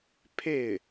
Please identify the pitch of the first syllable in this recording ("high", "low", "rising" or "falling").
falling